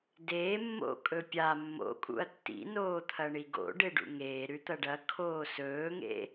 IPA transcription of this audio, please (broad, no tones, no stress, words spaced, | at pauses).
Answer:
deːmːo̰ kʼɵpʲa mːo̰kʼṵɐ̯ tːḭnoː t̪ʰɐɳiɡo̰ ɖeɖṵŋeː ɾʉt̪ɐɖɐ kʰoːsɵːŋḛ